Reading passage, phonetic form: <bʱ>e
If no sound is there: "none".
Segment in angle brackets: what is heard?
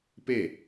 p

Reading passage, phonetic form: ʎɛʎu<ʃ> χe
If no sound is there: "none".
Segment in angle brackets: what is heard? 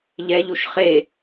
ʃ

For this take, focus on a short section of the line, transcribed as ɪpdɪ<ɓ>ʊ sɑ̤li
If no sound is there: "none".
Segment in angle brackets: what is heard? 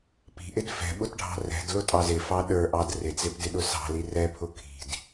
ɗ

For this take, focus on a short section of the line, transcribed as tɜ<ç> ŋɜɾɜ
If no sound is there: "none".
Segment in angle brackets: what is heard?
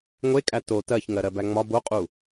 ç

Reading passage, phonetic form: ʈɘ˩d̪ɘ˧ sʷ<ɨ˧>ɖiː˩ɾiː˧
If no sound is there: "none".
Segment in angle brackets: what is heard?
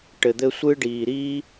ɨ˧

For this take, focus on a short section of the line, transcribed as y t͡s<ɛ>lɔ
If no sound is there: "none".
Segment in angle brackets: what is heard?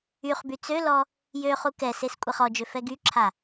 ø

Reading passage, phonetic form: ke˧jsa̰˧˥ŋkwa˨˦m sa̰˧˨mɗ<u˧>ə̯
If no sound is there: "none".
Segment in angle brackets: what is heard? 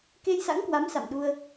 u˧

